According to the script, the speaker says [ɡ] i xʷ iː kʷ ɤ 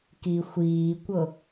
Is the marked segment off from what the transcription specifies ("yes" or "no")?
yes